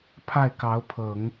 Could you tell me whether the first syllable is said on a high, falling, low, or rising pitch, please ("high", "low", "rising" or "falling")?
falling